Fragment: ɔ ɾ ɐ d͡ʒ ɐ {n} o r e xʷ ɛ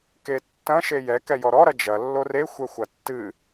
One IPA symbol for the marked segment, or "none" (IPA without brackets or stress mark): lː